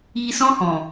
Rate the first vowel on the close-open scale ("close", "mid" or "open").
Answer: close